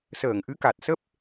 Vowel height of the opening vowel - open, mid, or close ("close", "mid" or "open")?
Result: mid